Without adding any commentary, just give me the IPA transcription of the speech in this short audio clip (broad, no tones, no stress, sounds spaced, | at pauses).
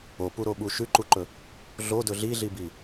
o p u ɾ o ɓ u ʃ ʉ ǃ u ǃ ɵ | ɮ o d ɵ ɮ i ɮ i b i